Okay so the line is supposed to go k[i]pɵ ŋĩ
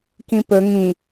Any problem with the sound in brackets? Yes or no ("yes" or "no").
yes